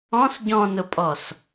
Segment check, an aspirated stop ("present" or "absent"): absent